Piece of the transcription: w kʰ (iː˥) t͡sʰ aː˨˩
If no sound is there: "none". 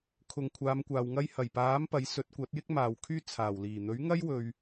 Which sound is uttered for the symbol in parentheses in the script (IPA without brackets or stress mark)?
yː˥